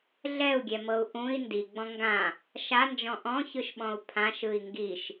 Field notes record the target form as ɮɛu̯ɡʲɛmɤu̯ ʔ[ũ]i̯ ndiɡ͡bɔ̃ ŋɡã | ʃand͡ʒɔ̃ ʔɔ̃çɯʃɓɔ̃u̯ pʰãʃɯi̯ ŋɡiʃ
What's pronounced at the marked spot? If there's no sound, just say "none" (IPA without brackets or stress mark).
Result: ũ